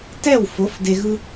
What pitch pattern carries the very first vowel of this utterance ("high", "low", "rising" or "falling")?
falling